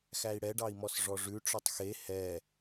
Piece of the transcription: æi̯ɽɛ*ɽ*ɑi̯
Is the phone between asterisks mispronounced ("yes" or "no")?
yes